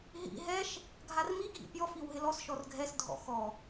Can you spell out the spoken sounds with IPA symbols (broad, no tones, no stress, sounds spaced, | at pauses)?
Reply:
ɦ ḭ ɦ ɛ ʃ | ɡʱ a r m i ɡʱ ḭ pʲ ɔ f i w ɦ ɪ l ɔ s ʃ ɔ r ɡʱ ɛ s dʱ ɔ̰ x ɔ